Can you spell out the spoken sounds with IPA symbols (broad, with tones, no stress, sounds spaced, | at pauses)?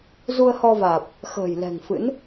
z u˧ ə̯ h ɔ˧ v aː˨˩ p̚ | x ə̤ː˨˩ j l ɛ̤˨˩ ŋ f ɨ̰˧˥ n